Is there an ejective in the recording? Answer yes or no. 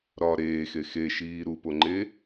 no